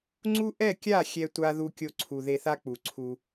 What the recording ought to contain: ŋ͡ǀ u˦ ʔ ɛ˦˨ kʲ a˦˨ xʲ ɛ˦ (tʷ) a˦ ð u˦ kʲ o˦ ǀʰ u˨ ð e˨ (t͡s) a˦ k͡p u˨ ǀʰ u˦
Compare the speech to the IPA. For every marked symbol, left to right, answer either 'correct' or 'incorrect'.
correct, incorrect

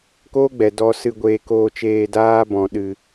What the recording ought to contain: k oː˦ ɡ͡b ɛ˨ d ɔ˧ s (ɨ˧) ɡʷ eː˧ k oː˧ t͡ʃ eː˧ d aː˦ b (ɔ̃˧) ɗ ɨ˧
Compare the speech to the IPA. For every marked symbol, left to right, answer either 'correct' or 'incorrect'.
correct, correct

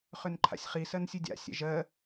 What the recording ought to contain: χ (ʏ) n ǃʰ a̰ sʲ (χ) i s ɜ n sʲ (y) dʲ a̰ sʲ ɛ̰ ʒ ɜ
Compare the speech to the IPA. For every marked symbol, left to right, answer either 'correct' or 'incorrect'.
correct, correct, incorrect

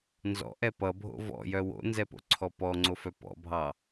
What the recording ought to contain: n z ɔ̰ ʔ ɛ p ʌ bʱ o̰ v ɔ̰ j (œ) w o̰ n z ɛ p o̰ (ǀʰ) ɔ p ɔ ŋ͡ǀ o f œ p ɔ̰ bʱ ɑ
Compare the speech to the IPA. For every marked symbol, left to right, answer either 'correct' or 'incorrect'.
correct, correct

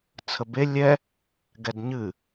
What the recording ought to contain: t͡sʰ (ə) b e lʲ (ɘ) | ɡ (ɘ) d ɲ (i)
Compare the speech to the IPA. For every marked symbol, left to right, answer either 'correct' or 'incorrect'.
correct, incorrect, incorrect, incorrect

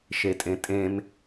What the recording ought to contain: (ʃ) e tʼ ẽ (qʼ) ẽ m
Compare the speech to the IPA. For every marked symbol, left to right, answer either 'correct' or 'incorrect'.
correct, incorrect

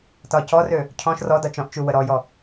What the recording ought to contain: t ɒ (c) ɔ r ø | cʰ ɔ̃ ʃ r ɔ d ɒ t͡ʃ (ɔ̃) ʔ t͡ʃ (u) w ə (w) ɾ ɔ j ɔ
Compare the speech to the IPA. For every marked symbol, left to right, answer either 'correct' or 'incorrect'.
correct, correct, correct, incorrect

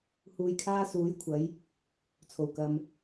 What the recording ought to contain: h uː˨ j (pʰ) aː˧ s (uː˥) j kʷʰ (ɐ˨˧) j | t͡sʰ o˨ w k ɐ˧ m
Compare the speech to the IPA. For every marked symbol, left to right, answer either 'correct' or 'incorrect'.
incorrect, incorrect, correct

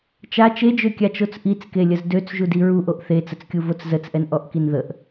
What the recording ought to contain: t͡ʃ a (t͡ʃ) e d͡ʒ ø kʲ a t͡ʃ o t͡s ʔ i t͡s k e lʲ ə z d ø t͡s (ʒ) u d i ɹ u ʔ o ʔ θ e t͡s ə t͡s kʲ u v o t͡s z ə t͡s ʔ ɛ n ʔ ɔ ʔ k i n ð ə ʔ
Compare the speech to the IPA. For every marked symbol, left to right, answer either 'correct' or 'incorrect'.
correct, correct

